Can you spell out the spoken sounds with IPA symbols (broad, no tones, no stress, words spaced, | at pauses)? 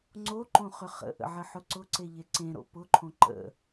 ŋ͡ǀoǃõχʏ χə̰ʔə̰ʕəħʊ ǀʊǀeʎe ǀẽɾo̰ pʊǃʰõ ǃə̰